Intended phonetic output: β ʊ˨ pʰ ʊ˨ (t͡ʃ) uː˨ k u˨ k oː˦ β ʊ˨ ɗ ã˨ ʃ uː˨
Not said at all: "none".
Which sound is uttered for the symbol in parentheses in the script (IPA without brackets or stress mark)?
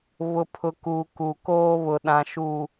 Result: k